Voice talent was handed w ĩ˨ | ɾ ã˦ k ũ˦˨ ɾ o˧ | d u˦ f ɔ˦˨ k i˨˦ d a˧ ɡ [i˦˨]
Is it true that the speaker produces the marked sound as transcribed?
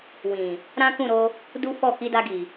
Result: no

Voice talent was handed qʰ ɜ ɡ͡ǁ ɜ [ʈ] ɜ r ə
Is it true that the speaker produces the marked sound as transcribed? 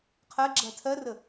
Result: no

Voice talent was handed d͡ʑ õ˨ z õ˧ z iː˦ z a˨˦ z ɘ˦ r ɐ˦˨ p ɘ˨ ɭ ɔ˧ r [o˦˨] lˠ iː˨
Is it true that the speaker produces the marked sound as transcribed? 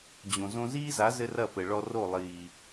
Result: yes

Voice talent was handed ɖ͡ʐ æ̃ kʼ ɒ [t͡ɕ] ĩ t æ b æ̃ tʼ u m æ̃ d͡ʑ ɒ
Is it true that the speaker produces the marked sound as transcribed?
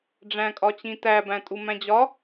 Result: yes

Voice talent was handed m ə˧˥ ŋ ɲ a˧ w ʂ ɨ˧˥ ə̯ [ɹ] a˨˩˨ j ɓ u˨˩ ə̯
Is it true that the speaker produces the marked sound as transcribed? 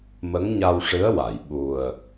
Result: no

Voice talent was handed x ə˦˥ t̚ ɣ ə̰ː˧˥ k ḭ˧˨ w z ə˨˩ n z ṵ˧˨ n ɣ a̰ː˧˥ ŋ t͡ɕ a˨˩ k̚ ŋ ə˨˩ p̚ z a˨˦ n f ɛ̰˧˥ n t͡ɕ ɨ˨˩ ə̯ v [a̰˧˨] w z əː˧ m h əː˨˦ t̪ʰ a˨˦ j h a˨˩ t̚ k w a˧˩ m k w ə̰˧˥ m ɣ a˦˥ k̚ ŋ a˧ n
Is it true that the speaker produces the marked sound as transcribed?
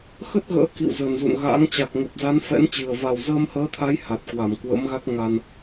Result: no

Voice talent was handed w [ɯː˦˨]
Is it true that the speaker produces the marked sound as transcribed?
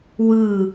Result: yes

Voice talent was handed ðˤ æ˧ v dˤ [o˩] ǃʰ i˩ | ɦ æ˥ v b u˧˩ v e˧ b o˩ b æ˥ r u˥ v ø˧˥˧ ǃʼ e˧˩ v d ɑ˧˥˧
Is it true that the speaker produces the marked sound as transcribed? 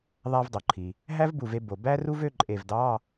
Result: yes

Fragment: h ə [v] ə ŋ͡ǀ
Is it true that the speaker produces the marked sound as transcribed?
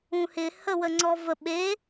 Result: no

